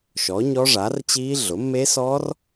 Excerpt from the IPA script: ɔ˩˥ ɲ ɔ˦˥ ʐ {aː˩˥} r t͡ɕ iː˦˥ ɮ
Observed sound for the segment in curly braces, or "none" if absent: aː˩˥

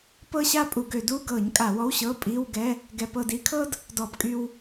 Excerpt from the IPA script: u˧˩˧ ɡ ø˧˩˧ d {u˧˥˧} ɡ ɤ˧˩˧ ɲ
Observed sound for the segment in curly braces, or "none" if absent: u˧˥˧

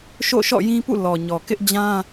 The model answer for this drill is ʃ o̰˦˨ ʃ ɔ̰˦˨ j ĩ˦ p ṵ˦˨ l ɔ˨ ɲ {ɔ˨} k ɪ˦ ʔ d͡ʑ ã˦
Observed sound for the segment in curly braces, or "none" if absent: ɔ˨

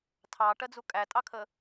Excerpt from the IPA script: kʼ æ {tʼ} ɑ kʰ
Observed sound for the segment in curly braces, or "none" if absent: tʼ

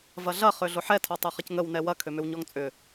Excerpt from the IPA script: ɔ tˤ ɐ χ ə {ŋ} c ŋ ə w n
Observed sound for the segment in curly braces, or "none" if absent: none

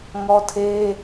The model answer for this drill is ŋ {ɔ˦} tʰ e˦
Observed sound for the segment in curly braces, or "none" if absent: ɔ˦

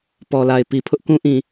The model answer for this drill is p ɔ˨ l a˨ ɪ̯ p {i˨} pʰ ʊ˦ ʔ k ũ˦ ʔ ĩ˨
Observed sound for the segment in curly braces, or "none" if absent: i˨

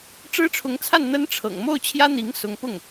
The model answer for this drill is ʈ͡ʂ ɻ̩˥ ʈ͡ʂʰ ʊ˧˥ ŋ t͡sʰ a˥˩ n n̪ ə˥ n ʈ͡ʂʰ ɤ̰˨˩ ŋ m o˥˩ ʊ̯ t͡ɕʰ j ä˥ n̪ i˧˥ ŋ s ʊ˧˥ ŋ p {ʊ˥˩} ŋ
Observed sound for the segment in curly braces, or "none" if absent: ʊ˥˩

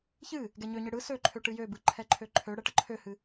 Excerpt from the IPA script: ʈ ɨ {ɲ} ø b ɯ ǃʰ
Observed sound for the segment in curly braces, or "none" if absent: j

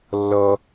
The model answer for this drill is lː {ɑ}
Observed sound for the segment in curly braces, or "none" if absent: ʌ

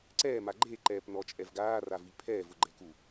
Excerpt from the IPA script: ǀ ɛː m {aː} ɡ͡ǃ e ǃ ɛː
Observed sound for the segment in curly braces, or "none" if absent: a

